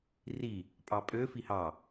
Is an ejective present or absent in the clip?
present